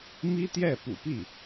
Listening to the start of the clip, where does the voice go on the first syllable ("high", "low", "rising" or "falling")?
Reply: high